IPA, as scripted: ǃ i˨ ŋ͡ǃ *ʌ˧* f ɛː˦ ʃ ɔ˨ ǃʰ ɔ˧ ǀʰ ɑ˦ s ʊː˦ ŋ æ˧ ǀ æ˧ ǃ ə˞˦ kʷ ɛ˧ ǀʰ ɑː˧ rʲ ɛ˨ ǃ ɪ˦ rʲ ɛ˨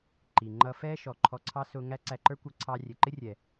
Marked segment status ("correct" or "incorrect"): correct